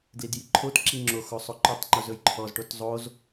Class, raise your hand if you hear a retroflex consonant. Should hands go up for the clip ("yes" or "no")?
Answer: yes